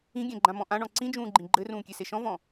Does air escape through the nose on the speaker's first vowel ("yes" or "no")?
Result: yes